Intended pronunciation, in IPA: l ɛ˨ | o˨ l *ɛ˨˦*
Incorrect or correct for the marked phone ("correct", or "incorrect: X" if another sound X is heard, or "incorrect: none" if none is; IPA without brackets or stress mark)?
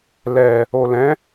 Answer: incorrect: ɛ̃˨˦